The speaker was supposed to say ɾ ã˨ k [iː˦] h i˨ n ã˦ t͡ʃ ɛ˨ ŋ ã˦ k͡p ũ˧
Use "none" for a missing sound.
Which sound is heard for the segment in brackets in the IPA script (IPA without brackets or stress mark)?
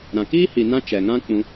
iː˦